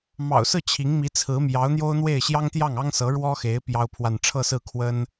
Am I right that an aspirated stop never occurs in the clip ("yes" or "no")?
no